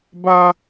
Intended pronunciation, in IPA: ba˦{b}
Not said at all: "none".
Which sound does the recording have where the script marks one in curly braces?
none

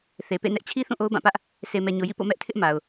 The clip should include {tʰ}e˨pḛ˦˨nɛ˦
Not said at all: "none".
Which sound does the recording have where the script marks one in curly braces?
θ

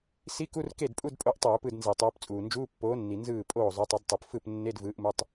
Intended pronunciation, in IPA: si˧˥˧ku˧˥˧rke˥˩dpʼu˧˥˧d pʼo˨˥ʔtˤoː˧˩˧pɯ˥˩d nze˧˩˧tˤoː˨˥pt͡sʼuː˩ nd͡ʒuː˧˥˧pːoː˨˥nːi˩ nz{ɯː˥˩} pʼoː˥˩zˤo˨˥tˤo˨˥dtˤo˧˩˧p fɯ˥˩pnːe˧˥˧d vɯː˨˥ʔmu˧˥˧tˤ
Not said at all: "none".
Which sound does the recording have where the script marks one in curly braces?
ɯː˥˩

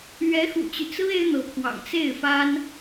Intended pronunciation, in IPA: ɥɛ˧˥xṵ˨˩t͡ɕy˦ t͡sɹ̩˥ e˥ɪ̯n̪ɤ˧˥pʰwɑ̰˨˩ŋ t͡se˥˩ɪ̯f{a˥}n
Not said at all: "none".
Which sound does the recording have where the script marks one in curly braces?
a˥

